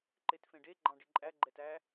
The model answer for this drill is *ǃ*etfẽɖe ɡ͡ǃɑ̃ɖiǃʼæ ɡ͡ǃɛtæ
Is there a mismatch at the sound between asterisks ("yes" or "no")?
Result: no